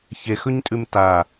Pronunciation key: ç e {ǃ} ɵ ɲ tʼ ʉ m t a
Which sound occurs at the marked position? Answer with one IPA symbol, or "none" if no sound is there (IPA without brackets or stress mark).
x